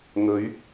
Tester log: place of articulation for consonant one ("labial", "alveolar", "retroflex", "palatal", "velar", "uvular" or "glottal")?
velar